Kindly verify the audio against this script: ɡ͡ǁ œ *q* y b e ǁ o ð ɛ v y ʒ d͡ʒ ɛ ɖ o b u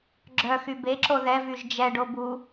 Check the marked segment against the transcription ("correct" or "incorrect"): incorrect